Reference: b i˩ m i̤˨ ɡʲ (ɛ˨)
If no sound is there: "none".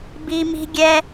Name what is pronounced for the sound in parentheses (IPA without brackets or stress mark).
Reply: ɛ˨